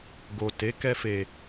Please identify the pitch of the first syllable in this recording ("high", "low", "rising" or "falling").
low